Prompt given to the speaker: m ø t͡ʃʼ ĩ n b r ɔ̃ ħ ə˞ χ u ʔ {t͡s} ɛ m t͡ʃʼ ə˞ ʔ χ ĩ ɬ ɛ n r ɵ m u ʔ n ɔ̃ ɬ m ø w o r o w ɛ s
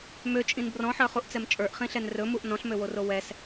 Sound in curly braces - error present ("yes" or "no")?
no